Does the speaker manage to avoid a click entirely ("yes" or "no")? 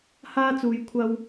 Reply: yes